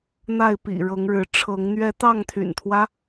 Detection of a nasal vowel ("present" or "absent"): absent